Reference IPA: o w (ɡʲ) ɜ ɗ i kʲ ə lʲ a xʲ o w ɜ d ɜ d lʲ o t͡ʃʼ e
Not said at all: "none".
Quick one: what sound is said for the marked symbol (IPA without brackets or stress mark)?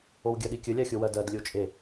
ɡʲ